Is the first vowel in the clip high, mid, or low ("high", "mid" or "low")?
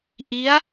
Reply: high